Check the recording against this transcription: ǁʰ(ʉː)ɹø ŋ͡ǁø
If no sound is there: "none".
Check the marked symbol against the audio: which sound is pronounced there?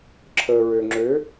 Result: əː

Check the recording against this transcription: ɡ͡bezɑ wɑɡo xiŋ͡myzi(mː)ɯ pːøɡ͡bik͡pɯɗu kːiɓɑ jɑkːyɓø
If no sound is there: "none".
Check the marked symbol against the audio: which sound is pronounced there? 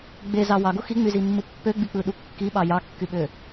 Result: mː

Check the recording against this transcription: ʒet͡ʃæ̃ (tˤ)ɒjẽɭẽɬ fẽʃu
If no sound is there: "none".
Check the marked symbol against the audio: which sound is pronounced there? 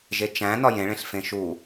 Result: n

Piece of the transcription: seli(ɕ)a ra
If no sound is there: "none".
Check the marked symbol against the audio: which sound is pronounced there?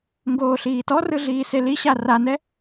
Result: ɕ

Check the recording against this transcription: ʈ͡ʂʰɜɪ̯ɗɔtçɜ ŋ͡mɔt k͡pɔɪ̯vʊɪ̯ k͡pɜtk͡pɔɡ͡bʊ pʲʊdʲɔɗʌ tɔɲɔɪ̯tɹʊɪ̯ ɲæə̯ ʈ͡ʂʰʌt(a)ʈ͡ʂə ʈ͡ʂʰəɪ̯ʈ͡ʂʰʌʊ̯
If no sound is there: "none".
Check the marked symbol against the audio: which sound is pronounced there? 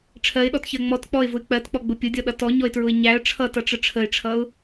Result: ʌ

